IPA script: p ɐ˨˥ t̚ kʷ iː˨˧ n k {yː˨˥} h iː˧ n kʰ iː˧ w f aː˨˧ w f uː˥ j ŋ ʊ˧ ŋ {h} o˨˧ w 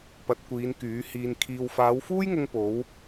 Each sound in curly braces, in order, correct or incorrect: correct, incorrect: p

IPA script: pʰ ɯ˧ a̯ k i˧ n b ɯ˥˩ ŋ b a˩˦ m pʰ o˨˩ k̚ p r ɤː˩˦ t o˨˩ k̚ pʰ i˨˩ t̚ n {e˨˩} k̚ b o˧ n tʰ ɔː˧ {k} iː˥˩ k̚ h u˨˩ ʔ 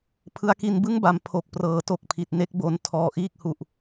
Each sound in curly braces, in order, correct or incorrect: incorrect: e˥˩, incorrect: ʔ

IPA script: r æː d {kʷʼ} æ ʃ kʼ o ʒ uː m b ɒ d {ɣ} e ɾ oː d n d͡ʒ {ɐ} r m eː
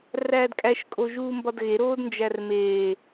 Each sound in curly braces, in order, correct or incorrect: incorrect: kʼ, correct, incorrect: æ

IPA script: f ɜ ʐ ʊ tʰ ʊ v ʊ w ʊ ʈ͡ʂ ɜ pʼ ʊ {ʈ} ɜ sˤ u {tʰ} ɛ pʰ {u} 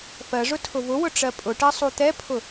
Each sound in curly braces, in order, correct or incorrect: correct, incorrect: t̪, incorrect: ʊ

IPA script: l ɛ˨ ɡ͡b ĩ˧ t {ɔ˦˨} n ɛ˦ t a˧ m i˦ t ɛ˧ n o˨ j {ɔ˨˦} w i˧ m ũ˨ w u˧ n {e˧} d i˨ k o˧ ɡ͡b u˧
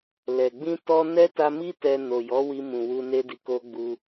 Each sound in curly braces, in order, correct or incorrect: incorrect: ɔ˧, correct, correct

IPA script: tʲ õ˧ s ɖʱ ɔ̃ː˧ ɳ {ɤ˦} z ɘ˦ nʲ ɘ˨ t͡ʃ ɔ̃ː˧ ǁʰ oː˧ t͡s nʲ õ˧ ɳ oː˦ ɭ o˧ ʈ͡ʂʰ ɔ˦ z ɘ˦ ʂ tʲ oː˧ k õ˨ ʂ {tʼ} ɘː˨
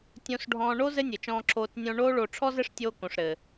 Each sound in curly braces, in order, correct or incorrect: incorrect: o˦, incorrect: ɾ

